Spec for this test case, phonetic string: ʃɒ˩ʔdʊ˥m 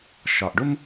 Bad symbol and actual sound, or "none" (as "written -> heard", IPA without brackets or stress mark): d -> ɖ